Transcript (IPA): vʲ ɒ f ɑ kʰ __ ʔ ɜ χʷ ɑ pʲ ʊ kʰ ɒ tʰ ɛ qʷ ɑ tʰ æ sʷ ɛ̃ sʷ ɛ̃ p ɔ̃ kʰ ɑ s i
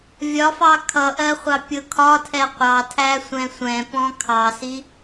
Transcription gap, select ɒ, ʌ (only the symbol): ʌ